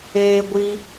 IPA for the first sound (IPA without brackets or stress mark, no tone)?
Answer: eː